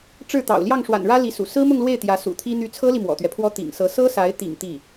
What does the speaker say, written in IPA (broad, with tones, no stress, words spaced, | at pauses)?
ʈ͡ʂɻ̩˥˩t̪ɑ̰˨˩ʊ̯ ljɑ˥˩ŋʂwa̰˨˩nɻä˥ li˧˥sṵ˨˩ sɹ̩˥mʊ˥˧ŋlwe˥˩ɪ̯ t̪jä˧˥sṵ˨˩t̪ʰi˥ n̪y˧˥t͡sʰɤ˥li˨ mwɔ̰˨˩t̪ɥɛ˦pʰwɔ˥ t̪ḭ˨˩ŋsɤ˧˥ sɤ˥sa˧˥ɪ̯t̪ḭ˨˩ŋ t̪i˥˩